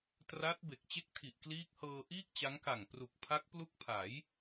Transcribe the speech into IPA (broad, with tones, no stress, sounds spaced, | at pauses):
t r a˦˥ t̚ b e˨˩ k̚ t͡ɕ e˥˩ k̚ tʰ i˨˩ ʔ k l iː˦˥ k̚ h ɤː˧ ʔ iː˥˩ k̚ t͡ɕ a˦˥ ŋ k a˨˩ ŋ p r u˨˩ k̚ pʰ a˦˥ k̚ p l u˦˥ k̚ pʰ a˩˦ j